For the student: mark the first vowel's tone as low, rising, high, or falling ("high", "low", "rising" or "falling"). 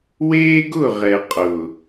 high